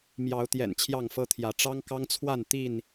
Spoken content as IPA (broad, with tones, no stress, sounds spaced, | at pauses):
m j ɑ˨˦ ʊ̯ t̪ j ɛ̰˨˩ n t͡ɕʰ j ɑ˥˨ ŋ f ɤ˦ t̪ʰ j ä˨˦ ʈ͡ʂ ɑ˦ ŋ k ɑ˦ ŋ t͡sʰ w a˥˨ n t̪ i˥˨ n